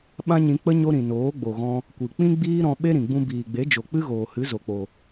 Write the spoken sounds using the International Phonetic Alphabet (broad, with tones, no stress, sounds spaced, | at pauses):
ɓ ã˦ ɲ ĩ˧ k͡p ə˦ ɲ o˦ ɾ ĩ˨ n oː˨˦ ɡ͡b o˨ ɣ ɔ̃˧ | kʷ ɨ˨ k͡p ĩ˦ ɡ͡b iː˦ ɾ ɔ̃˧ ɓ e˦ ɾ ĩ˨ ɡ͡b ũ˧ b iː˨ ɡ͡b e˨˦ d͡ʒ o˨ k͡p ɨ˦ ɣ oː˨ h ɨ˨˦ z o˨ k͡p o˨